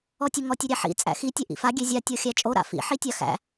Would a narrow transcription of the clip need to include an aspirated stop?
no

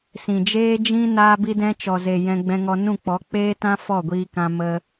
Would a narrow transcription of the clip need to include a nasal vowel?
yes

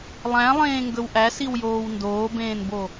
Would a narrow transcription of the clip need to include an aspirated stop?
no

